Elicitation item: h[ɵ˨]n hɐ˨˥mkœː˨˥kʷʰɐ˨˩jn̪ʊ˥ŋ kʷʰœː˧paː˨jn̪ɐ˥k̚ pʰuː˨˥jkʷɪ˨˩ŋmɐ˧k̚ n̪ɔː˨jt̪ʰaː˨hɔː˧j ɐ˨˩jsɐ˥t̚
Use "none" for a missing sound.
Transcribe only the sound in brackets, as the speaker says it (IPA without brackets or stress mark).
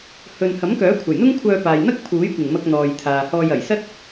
ɵ˨